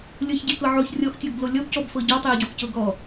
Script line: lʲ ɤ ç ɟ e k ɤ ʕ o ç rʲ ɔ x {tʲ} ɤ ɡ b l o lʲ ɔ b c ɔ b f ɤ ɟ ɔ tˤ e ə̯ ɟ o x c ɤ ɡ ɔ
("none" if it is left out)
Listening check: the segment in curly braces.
tʲ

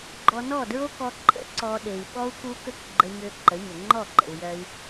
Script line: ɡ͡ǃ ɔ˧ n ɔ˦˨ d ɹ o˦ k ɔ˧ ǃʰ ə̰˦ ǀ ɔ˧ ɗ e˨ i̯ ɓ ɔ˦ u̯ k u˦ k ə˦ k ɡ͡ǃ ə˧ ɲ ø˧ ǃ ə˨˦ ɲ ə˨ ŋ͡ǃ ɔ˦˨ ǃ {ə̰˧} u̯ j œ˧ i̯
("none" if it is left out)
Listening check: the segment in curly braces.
ə̰˨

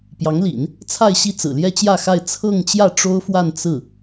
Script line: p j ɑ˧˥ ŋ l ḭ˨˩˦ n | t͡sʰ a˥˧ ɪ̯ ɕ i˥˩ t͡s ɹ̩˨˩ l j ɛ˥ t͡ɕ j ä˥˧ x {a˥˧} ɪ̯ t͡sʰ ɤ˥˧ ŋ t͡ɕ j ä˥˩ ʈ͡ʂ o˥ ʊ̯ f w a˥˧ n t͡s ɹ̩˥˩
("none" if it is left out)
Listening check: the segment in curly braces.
a˥˧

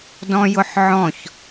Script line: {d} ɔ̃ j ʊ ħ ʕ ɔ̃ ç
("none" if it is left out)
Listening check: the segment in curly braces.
d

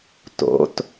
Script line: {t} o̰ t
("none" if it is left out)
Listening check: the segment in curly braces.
t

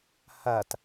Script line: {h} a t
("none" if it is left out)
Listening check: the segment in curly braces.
h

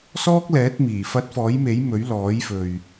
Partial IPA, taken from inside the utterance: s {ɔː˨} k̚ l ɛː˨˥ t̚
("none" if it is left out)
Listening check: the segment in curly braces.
ɔː˥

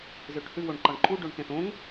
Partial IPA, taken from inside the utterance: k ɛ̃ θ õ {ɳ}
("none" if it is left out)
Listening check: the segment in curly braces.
ŋ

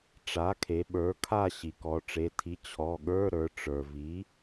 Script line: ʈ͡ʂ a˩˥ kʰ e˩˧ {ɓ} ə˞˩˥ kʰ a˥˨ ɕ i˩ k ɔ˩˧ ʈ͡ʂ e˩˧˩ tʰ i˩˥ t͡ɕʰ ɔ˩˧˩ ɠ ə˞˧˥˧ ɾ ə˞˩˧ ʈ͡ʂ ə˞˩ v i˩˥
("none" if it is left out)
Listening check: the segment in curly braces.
ɓ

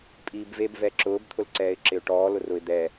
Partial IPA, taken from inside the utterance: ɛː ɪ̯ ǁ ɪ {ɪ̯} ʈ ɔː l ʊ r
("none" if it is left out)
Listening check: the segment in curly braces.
ʊ̯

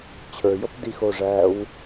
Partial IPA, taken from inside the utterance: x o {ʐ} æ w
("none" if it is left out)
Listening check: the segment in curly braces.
ʐ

